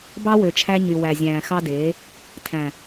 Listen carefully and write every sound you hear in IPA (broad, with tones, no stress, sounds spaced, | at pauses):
b ɑ˦ w ø˨ t͡ʃʰ æ˧ ɲ y˨ w æ˨ zʲ æ̃ː˨ x ɑ˦ d eː˨˦ | tʰ æ̃˨